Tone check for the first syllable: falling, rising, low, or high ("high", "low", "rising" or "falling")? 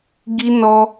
high